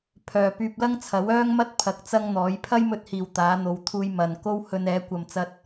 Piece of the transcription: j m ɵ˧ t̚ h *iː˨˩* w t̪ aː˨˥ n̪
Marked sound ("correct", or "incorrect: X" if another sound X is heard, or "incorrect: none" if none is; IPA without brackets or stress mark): correct